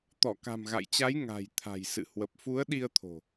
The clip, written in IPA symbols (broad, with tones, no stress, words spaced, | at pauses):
t̪ɔ˧˩ka̤˨˩mɣa̰˧˨jt͡ɕa˨˦j ŋa̤˨˩j t̪ʰa̤˨˩jsɨ̰˧˨ hwə˨˩p̚fu˨˦ə̯ɗi˧ə̯t̪ʰo̤˨˩